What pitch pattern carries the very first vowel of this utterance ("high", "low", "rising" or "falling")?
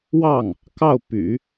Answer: falling